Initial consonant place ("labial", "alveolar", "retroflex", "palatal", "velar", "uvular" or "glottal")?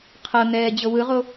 uvular